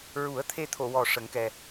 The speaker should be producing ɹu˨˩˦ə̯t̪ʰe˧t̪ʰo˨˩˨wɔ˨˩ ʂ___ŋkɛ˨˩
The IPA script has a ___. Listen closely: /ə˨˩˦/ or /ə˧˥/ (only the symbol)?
ə˨˩˦